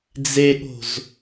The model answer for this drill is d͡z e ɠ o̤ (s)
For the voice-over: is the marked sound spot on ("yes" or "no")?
no